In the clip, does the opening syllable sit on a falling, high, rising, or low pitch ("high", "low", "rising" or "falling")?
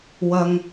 high